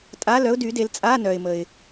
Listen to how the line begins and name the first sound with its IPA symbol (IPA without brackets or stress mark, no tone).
tʼ